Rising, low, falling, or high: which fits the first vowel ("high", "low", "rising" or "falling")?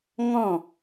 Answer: falling